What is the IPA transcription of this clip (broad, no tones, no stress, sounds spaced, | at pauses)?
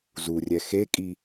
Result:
z u rʲ ɛ x e kʼ i